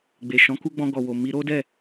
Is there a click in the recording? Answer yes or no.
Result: no